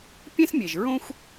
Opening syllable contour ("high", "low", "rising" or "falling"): high